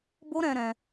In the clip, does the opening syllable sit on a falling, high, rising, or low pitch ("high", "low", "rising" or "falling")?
high